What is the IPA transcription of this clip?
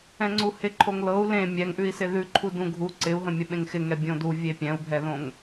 ɛ̃ ŋ͡ǀ u h ɪ ǃʰ o ŋ l ɤ u̯ l ẽ mʲ ɛ ŋ ʔ ʉ i̯ s ɪ ð ʉ ǃʰ u d ũ ɡʱ u ǀ ɪ u̯ ɦ ə̃ mʲ ə ɓ ẽ ŋ x ɪ ŋ ɛ bʲ õ d u vʲ e pʲ ɛ̃ u̯ bʱ ɛ ð õ ŋ

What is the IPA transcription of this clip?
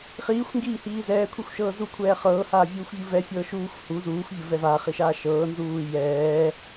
χ iː xʷ ŋ ɡ iː h iː z ɛː kʷʰ i xʷ ʃ ɤː z u kʷʰ ɛː χ ɤː h aː vʲ uː xʷ vʲ u v ɛ fʲ ɤː ʃ uː xʷ h u z uː xʷ vʲ ɤ v ɛ v a χ i ʃ aː ʃ ɤː n z uː j ɛː

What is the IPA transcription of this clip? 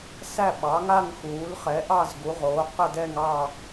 s æ˥˨ ɓ ɑ˩˥ ŋ a˥˨ ŋ x uː˩˥ l χ ɛ˩˥ ʔ ɑ˥˨ z ɡ u˩˥ ʁ oː˩˥ q ə˥˨ d ɛ˥˨ ŋ ɑ˥˨

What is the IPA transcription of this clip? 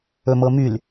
ɵ m ɤ m y l

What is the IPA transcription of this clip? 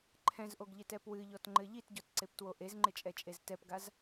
ǃʰ ɛ̃ z ʔ o ɡ ʎ ɪ t ɛ p w ɨ ʎ ɔ t ŋ͡ǃ ɘ ʎ i t ɟ ɔ t ǀ e p t w o ʔ e z ŋ͡ǃ ɪ t͡ʃʼ ɛ t͡ʃʼ e z t ɛ p ɡ a z

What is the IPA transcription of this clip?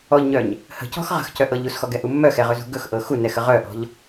ɔ ʎ ɲ œ ɲ | h ə̤ c ɔ̤ x ʁ ə̤ x c œ ʔ ɤ ʎ u s x ɔ ɡ ɛ ʔ u mː œ x ɛ ʁ ɵ z ṳ ɡ ɵ x ʔ ɤ x u n ɛ x ə ʁ œ ʔ ɔ̤ ʎ

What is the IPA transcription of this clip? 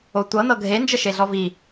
o tʷ ɤ n ɤ ɡʱ e n d͡ʒ ə ʃ e ɮ ɔ v i

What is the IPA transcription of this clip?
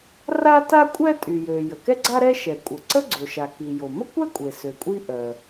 r a˥ t a˥ kʷʼ ɛ˥ tʼ y˩ j ø˩ j ə˩ k ɛ˥ ɡ͡ǀ a˥ ɾ ɛ˥ ʃ ɛ˩ kʷʼ ə˩ ǀ ə˥ ɡ͡ǀ o˩ ʃ a˩ k i˩ j o˩ m ə˥ kʷ ɛ˥ kʷʼ e˩ s ø˩ kʷʼ i˥ ʔ œ˩

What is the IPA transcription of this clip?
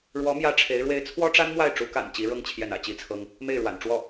ɻ w ɔ˧˥ m j ä˥ ʈ͡ʂʰ e˧˥ ɪ̯ ɻ w e˥ ɪ̯ t͡sʰ w ɔ˥ ʈ͡ʂ a˥ n m w a˥˩ ɪ̯ ʈ͡ʂ u˧˥ k a̰˨˩ n t͡ɕ i˧˥ ɻ ɤ˥ ŋ t͡ɕʰ j ɛ˥˩ n ä̰˨˩ t͡ɕ i˥ t͡sʰ ɤ˥ ŋ | m e˥˩ ɪ̯ ɻ w a̰˨˩ n ʈ͡ʂ w ɔ˥˩

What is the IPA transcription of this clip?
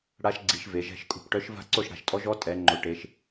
ɽ a˧˥ ʃ ɡ͡ǀ i˩˧ ʃ v e˩˧ ʒ ɛ̤˥˨ ʃ kʼ ṳ˥˨ p ʈ œ˧˥ ʃ v a̤˥˨ ǀ o˥˨ ʃ ɽ a̤˩˧ ʃ tʼ ɔ˧˥ ʒ ɔ˧˥ tʼ ɛ˩˧ ŋ͡ǃ o˩˧ ʈ e˩˧ ʃ

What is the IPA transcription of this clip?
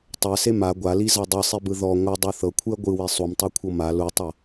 tˤ ɛ s e m a ɡʷ a l i z a dˤ ɯ sˤ i b ɯ ð ɔ ŋʷ ɯ dˤ u θ ɤ kʷʰ ɯ ɐ̯ ɡʷ ɯ w e sˤ u m tˤ o kʷʰ ɤ m a l u tˤ ɤ

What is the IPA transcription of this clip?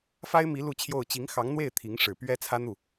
f a˥ ɪ̯ m i˧˥ l u˥˧ t͡ɕʰ j o˥˩ ʊ̯ t͡ɕ i˧˥ ŋ x ɑ˧˥ ŋ n̪ w e˥˩ ɪ̯ t̪ʰ i˧˥ ŋ ʂ ɻ̩˨˩ p ɥ ɛ˥ t͡sʰ ä˥ n̪ u˥˩

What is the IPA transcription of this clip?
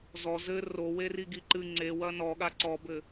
z ɔ z ɘ r o w e r i ɡ i ǃ ɨ ŋ͡ǀ e w ɐ n ɔ ɠ a ǀ ɔ b ɘ

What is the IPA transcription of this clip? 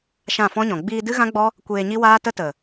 ʃ ã˦˨ f ɔ̃˦ ɲ ɔ̃˨ ɡ͡b iː˧ d ɨ˦ ɣ ã˦ ɡ͡b ɔ˦ | kʷ eː˧ ɲ i˦ w aː˦ t ə˦ t ə˨

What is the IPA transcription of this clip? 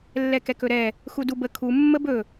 lː ɛ k ɛ k ɵ ɾ ɛ | x u d u b ə kʰ u mː ə b ɵ

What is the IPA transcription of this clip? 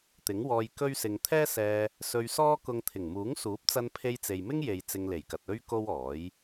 t̪ ɪ˨˥ ŋ w ɔː˧ j k ɵ˥ ɥ s ɪ˧ ŋ t̪ʰ ɛː˥ s ɛː˧ | s ɵ˧ ɥ s ɔː˥ k ʊ˧ ŋ t̪ʰ ɪ˨˩ ŋ m uː˨˥ ŋ s uː˨˥ p̚ t͡s ɐ˧ n pʰ e˧ j t͡s e˨ j m ɪ˥ ŋ j e˨ j t͡s ɪ˧ ŋ l e˨˩ j k ɐ˨ t̚ ɵ˥ ɥ k o˥ w ɔː˨˥ j

